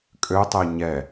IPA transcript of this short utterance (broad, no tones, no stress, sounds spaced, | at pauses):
kʼ ø tˤ e ɲ ɛ